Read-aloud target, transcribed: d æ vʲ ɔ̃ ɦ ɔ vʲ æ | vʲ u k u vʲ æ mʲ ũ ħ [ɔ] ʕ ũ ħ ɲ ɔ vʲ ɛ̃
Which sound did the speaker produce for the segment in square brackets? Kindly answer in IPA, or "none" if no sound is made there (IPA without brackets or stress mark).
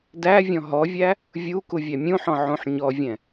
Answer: ɔ̃